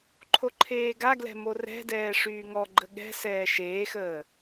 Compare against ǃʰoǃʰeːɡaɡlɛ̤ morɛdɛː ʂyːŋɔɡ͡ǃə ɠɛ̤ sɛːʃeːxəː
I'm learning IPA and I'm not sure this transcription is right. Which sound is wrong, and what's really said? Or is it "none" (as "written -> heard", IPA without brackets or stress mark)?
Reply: ɛ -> ɛ̤